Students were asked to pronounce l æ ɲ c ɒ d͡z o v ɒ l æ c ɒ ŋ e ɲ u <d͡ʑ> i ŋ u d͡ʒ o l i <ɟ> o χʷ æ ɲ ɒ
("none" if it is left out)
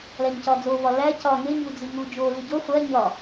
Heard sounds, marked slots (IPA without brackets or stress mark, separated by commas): d͡z, ɟ